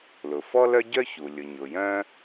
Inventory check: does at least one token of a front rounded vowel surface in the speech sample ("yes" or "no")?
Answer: yes